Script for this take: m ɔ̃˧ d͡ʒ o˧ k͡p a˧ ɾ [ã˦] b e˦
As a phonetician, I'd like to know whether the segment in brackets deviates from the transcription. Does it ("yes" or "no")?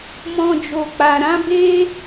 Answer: no